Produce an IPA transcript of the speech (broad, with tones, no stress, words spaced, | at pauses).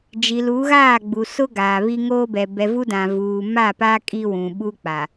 d͡ʒi˨lu˨˦ɣaː˦˨ɡ͡bu˨ sʊ˦ ɡaː˨βi˦ŋoː˦bɛ˨ bɛ˨vu˦ dã˨vuː˨ ma˦˨pa˦ kʼi˦wũ˨ɓu˦ k͡pa˨